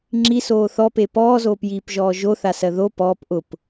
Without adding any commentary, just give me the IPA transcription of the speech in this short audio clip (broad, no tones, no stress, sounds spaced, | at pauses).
ŋ͡ǁ i s oː θ ɔ p e p ɔː z oː p j iː p ʒ ɔː ʒ o θ a s ɜ ð o p ɔː p ʔ ʊ p